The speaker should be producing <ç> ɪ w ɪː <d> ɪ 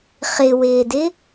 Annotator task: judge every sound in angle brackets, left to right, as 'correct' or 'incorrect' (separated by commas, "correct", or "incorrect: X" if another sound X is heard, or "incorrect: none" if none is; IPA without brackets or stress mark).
incorrect: χ, correct